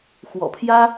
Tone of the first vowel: low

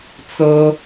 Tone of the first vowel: high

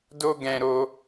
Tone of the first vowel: high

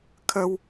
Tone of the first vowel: high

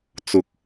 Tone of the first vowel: low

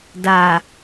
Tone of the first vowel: low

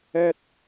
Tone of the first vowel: high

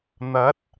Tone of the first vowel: rising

